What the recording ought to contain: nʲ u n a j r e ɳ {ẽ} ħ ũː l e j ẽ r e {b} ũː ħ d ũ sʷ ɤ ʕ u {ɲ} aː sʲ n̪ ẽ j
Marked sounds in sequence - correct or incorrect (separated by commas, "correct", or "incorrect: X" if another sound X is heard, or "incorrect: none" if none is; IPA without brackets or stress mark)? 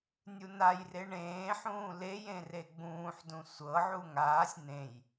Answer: incorrect: ẽː, incorrect: ɡ͡b, incorrect: ŋ